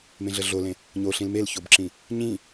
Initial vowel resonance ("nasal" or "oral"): nasal